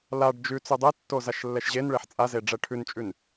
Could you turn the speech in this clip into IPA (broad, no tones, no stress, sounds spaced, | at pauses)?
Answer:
l a ɖ d͡ʒ ʉ t͡s ʉ dˤ e tː o z a ʃ lː ɛ ʃ ʑ e n ɭ e ħ t͡sʼ a z e ɖ͡ʐ ɛ ʈʰ ʉ n t͡ʃʼ ʉ n